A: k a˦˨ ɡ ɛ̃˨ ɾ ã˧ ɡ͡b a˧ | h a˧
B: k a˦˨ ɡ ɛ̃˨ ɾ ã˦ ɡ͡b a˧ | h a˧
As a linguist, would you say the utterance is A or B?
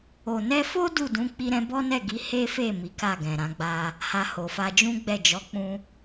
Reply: A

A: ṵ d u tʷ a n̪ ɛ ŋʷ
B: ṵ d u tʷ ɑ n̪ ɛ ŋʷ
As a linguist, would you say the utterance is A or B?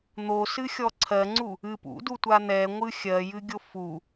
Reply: A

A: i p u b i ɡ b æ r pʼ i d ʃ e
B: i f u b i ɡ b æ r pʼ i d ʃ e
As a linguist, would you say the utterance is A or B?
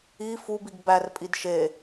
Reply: B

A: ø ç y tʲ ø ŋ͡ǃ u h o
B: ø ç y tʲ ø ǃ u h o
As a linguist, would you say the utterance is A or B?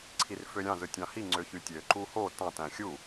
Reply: B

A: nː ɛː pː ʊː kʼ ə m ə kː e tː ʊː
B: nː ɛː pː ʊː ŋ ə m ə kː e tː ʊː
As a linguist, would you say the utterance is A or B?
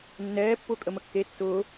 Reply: A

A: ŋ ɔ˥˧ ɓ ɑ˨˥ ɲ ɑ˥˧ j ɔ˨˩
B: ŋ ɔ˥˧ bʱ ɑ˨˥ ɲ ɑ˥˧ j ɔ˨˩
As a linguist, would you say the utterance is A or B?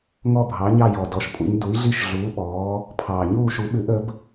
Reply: B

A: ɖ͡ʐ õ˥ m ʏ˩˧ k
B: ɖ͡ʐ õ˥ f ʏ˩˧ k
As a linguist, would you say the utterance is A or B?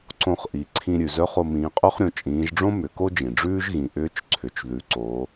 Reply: A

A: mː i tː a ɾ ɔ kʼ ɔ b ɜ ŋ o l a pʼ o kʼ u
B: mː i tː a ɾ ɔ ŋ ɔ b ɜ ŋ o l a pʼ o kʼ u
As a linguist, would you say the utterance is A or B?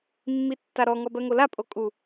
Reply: B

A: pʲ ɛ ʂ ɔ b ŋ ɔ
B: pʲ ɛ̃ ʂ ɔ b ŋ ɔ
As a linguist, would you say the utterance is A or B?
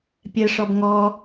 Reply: A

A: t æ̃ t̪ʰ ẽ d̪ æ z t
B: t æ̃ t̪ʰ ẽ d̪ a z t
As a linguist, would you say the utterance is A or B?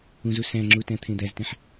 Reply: A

